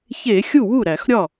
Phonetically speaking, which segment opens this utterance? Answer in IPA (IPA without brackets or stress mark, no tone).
ç